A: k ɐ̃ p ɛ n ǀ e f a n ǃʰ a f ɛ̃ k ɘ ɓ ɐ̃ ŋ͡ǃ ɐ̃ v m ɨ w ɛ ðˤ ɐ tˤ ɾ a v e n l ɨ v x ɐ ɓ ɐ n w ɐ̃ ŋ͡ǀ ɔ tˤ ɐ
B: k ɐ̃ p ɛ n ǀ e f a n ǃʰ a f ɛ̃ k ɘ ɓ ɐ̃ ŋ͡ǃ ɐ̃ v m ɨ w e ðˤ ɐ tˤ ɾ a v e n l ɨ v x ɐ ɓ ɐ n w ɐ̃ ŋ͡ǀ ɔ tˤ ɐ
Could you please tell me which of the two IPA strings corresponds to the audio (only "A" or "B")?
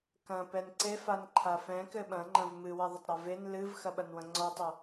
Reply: A